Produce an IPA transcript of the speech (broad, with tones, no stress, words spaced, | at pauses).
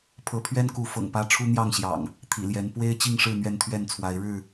pʰɤ˨˦pʰɥɛ˦nku˨˦ fɤ̰˨˩ŋpä˦ ʈ͡ʂʰu˦n̪jɑ˥˨ŋɕjɑ̰˨˩ŋ | t̪ʰḭ˨˩ljɛ˨˦n pwe˦ɪ̯ t͡ɕi˥˨ŋʂɻ̩˥˨ n̪ɥɛ˥˨nt̪ʰɥɛ˥˨nt͡sʰwa˨˦ɪ̯ ɻɻ̩˥˨